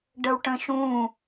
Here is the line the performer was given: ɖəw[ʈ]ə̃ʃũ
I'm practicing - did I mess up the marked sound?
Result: no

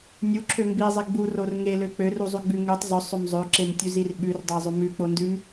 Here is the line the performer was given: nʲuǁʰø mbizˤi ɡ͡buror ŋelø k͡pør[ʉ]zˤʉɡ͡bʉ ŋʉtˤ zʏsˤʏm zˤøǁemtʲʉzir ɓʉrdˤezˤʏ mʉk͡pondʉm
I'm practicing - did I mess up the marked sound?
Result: yes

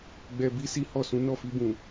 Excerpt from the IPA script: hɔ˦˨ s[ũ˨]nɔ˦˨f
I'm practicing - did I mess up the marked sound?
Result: yes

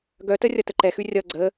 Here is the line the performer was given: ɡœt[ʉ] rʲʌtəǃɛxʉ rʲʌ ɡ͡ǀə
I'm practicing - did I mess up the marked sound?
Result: yes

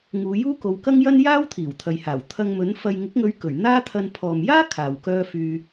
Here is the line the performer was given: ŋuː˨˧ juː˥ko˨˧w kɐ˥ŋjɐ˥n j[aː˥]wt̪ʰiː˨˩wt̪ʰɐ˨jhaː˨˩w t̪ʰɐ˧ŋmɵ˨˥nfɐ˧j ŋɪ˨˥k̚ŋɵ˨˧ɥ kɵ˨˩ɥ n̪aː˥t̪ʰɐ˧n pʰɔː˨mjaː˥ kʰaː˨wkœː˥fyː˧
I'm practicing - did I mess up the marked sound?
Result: no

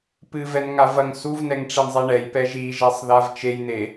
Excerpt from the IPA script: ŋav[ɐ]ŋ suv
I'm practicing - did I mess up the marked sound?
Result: no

